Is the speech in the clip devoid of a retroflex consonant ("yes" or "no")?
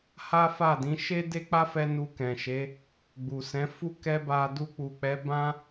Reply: yes